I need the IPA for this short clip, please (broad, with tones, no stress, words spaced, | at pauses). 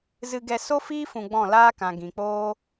zɨ˧ɡɛ˧ so˦fiː˦ fũ˧ɡ͡bɔ̃˦˨ laː˦kã˨ ɡĩ˨k͡poː˦